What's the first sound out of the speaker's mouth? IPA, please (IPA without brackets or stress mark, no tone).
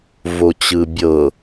v